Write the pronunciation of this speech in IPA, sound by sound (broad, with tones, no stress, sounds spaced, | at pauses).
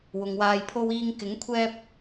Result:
w ʊ˨ ŋ w aː˧ j pʰ o˧ w iː˧ ŋ k ɪ˨˥ ŋ kʷʰ ɛː˧ p̚